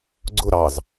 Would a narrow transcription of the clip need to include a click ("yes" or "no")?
yes